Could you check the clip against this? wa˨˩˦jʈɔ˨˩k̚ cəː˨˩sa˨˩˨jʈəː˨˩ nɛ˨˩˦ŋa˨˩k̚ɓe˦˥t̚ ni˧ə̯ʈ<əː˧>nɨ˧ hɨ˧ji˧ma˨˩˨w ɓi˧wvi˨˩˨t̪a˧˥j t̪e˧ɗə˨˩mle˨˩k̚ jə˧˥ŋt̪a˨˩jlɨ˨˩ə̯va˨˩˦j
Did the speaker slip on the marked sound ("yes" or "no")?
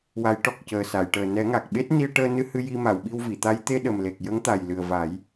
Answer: no